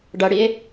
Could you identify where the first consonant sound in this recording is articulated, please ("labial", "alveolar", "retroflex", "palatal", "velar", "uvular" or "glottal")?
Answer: retroflex